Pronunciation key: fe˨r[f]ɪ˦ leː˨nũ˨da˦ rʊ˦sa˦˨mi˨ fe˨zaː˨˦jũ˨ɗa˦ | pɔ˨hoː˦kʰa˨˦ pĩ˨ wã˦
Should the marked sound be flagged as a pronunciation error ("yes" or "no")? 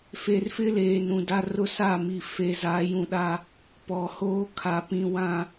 no